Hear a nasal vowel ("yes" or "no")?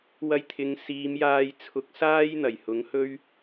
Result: no